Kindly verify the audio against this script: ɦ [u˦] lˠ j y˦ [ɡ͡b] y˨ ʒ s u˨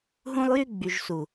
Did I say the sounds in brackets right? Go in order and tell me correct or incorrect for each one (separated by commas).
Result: incorrect, correct